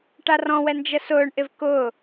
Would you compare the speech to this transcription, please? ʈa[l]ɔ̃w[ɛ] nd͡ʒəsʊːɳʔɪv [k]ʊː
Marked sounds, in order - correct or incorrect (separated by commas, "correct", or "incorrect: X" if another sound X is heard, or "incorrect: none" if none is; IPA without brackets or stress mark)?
incorrect: r, correct, correct